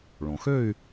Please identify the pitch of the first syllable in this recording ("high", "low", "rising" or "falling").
low